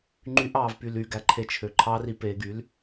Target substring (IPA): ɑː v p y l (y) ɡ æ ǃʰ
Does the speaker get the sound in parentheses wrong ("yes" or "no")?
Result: no